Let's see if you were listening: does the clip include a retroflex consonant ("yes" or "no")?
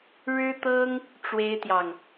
yes